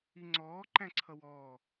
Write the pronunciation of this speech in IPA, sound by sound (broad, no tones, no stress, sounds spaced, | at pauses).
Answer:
i ŋ͡ǀ ɔː ǃ æ̃ ǀʰ ʌ w ɔː